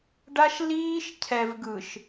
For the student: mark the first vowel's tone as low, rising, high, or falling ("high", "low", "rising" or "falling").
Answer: high